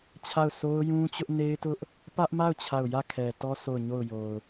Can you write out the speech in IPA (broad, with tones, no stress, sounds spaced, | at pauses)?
t͡ɕʰ a˦˨ ʊ̯ s o˦ ʊ̯ j ũ˦ t͡ɕ ʊ˦ ʔ n e˦ ɪ̯ t ʊ˦ ʔ | p ä˦ ʔ m a˦˨ ʊ̯ t͡ɕʰ a˦˨ ʊ̯ j ä˦˨ kʰ ɛ˨ t ɔ˦ s o˦˨ ʊ̯ ɲ o˦˨ ʊ̯ j o˨ ʊ̯